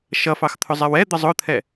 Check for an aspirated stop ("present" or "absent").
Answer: present